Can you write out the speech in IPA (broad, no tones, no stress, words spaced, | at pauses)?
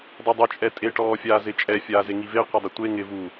dˤedˤʊ t͡ʃʼɛtʼeʈɔː fʲaːzɪt͡ʃʼɛ fʲaːzeŋive qʷɛdˤɪtʷe ŋɪ vu